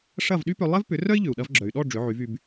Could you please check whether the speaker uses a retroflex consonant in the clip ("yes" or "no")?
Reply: yes